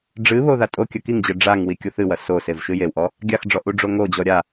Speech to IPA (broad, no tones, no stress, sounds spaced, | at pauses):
ɖ͡ʐ ɨ β o ð a tʼ o kʲ ɐ k i ŋ d͡ʑ ɘ ɖ͡ʐ a ŋ w i kʲ o θ ɨ w ɐ s o s e v ʃ ɨ j e w ʔ ɔ | ɡʲ a x ɖ͡ʐ ɔ ʔ u ɖ͡ʐ o ŋ o d͡ʑ ɔ ɾʲ a